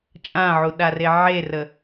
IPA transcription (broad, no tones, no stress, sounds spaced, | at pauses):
t͡ʃʼ ã ʕ u ɗ a r e ʕ e r ə